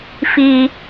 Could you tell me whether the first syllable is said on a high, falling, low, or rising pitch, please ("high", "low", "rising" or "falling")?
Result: low